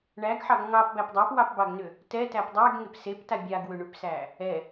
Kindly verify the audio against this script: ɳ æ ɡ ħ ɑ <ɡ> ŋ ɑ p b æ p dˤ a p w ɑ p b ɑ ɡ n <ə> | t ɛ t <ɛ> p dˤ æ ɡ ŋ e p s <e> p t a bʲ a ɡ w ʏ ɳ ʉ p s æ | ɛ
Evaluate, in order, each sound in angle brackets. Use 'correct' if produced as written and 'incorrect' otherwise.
correct, incorrect, incorrect, correct

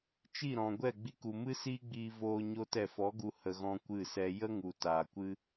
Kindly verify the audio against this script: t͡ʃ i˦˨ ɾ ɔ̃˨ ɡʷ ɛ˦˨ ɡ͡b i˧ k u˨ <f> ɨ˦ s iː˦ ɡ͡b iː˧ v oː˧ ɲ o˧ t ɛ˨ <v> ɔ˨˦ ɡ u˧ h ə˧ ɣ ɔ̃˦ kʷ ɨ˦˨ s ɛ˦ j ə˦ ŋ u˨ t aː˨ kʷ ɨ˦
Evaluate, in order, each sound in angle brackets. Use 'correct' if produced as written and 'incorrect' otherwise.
incorrect, incorrect

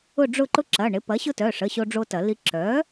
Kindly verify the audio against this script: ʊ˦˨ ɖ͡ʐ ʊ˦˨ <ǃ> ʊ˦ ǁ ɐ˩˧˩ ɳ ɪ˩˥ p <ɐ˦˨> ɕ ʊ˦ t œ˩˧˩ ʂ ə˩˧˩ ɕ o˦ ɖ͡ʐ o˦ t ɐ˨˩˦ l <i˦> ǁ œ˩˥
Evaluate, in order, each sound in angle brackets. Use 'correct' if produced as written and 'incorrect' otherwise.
correct, incorrect, correct

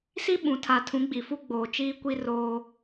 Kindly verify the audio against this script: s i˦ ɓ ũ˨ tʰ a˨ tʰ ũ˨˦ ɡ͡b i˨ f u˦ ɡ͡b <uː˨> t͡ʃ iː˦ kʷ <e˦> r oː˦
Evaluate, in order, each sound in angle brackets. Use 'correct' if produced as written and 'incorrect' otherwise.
incorrect, incorrect

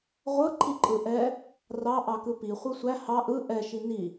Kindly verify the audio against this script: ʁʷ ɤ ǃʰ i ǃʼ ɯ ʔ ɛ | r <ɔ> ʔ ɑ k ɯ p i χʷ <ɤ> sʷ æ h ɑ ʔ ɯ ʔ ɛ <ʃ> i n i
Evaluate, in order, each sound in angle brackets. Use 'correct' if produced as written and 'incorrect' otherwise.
incorrect, incorrect, correct

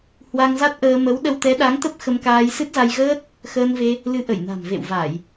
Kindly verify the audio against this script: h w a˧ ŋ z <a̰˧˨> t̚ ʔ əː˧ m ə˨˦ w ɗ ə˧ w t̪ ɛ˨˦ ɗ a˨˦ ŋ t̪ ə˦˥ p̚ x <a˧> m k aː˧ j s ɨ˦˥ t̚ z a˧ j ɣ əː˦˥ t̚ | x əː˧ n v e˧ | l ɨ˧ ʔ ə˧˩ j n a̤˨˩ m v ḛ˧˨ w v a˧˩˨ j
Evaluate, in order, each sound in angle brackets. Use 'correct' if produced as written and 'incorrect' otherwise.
incorrect, incorrect

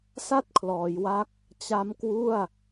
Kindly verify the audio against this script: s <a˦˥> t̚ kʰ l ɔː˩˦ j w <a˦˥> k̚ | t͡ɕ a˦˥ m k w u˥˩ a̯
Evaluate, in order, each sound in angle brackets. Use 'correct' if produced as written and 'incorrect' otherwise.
incorrect, correct

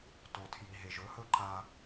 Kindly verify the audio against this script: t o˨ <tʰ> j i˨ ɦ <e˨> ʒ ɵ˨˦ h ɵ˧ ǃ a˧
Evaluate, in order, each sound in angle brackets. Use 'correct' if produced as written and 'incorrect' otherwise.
correct, correct

